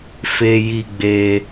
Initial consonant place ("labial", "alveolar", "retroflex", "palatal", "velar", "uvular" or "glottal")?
labial